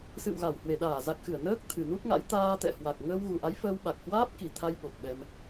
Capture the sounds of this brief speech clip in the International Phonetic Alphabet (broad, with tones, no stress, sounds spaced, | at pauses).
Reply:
s ɨ̰˧˨ w ɣ a˧˩ w h w e˧˩ ɗ aː˧˩ z a˨˩ k̚ x ɨ˧˩ ə̯ n əː˦˥ k̚ t̪ʰ ɨ˨˩ n u˦˥ t̚ ŋ a̰˧˥ j t̪ aː˧ t̪ ɛ̰˧˨ h w a˨˩ k̚ ŋ əː˧ w ɣ u˨˩ ʔ a˨˦ j f əː˧ w ɓ a˨˩ k̚ h w aː˦˥ p̚ k i˧˩ t̪ʰ a˧ j ɓ o˨˩ k̚ ɓ ɛ˧ m